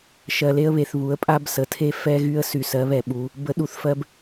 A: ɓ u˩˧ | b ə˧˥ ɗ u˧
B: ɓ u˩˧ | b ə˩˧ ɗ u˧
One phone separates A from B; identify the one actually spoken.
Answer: A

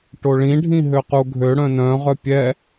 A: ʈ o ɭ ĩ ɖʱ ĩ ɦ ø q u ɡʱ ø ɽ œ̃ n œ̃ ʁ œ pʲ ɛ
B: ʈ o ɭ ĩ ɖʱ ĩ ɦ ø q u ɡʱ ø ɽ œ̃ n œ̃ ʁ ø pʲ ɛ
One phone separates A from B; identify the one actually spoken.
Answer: A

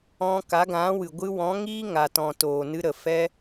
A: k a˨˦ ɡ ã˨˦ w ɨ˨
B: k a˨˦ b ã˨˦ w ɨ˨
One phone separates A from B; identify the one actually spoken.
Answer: A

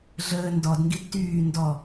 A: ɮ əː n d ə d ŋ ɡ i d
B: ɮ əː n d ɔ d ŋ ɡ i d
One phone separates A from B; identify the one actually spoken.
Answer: B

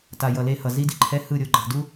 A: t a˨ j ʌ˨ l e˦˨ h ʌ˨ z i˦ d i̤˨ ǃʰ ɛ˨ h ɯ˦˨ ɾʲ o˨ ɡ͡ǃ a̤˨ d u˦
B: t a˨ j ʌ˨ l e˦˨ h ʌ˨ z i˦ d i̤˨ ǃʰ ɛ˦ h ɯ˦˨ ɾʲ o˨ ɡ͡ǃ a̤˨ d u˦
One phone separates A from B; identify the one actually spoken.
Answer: B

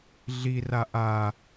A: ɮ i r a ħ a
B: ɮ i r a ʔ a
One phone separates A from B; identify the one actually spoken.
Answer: B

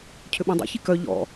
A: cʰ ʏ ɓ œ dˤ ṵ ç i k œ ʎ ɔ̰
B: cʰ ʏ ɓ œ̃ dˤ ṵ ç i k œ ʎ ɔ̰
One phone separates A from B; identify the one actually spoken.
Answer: B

